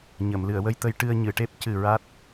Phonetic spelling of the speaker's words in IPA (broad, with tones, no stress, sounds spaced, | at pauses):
ɲ ə˨˩˨ m l ɨ˨˩˨ ə̯ w ə˧ j t̪ ə˧ j ʈ ɨ˧ ə̯ ɲ ɨ˨˩˨ ʈ e˦˥ p̚ c ɨ˨˩ ɹ a˦˥ t̚